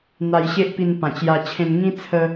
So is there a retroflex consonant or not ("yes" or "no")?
no